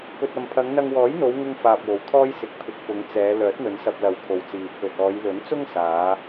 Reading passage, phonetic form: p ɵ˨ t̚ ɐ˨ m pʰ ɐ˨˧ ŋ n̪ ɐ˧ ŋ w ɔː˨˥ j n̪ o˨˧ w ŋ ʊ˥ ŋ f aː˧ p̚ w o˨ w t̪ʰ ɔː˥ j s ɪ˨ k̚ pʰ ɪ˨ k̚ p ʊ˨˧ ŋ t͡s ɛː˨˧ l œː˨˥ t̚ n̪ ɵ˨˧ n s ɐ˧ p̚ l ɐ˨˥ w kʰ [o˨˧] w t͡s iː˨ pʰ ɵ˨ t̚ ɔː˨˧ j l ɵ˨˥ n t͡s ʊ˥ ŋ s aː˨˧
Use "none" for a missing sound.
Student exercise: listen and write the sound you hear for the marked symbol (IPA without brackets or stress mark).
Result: o˨